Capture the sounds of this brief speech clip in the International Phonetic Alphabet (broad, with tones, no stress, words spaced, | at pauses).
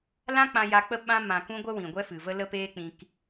lã˦ k͡pã˧ja˧k͡pə˦ ɓã˧ mã˨kũ˧ ɡʷə˦wĩ˨ɡʷɛ˦ fɨ˨və˦ lə˧ peː˦k͡pĩ˧k